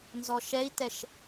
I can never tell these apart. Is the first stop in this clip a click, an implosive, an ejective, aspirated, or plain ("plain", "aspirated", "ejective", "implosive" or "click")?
plain